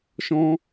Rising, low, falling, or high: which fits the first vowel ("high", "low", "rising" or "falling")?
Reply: high